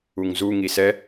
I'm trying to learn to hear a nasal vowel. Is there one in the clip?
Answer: no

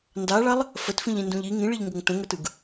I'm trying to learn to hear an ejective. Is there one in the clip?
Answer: no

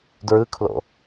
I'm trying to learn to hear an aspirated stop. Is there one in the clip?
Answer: yes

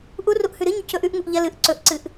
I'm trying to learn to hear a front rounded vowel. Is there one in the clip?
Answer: no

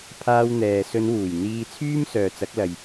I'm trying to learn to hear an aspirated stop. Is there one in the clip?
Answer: yes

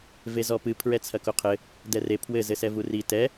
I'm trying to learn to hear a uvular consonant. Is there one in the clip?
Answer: yes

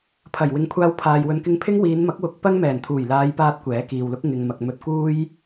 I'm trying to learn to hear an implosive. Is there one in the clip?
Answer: no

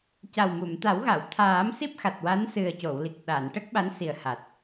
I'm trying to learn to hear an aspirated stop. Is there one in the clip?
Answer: yes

